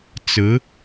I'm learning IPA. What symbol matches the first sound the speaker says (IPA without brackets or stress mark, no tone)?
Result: t͡s